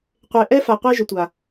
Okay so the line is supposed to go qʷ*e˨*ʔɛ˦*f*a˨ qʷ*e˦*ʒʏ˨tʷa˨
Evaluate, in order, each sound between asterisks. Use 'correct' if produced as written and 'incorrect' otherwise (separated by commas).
correct, correct, correct